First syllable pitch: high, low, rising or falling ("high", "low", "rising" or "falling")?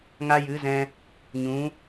high